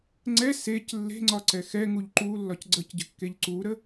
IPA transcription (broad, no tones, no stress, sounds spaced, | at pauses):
ŋ͡ǀ ɛ s e c lː e̤ ŋ͡ǀ ɒ ǀ ɛ x ɛ ŋ u ʎ ǃ u lː ɒ c ɡ͡ǀ ə c ɟ ə̤ kː e ʎ ǀ u ɾ ə